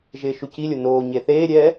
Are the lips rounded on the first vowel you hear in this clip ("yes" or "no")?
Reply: no